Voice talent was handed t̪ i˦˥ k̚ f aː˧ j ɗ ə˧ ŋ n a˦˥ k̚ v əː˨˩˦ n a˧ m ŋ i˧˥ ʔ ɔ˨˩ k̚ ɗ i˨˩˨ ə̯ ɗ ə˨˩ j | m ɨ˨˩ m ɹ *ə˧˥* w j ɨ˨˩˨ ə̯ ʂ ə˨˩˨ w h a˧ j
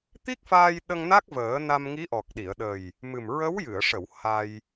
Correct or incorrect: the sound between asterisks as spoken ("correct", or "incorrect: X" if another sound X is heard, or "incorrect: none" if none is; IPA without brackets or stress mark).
correct